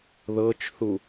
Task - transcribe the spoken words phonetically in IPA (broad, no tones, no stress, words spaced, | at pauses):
ðɤt͡ʃθu